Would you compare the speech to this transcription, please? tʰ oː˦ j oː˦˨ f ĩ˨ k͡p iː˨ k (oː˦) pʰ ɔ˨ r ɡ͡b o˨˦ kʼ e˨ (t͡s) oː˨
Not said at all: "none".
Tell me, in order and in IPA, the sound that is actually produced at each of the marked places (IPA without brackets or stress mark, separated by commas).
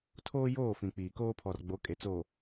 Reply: oː˦, t͡s